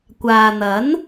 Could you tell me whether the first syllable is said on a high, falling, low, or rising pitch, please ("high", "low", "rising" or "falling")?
low